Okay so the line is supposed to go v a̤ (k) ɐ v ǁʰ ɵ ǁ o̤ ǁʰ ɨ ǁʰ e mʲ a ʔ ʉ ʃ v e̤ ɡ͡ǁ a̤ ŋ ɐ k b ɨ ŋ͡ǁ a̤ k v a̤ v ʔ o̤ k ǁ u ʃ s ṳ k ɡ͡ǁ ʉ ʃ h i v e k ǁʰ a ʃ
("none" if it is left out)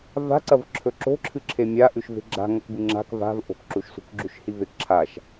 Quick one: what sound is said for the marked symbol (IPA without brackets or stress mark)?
ǀ